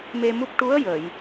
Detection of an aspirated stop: absent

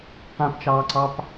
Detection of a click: present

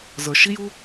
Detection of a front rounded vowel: absent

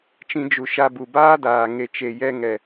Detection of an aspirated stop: absent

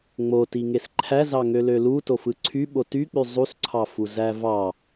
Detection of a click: present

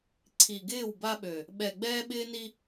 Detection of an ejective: absent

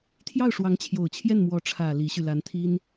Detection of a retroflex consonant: present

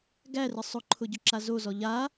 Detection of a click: present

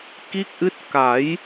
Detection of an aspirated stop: absent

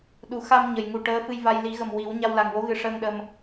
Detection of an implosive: present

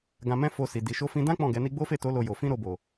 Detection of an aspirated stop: absent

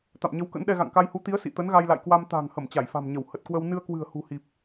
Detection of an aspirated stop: absent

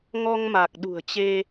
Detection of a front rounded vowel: absent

